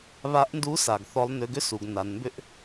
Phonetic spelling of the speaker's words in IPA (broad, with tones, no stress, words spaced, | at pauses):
βa˧˥ʔndu˧˥sa˩ɡ θɔ˧˥lˠnʏ˧˥ ɡʏ˥su˩˧ɡ na˩˧nmbʏ˥ʔ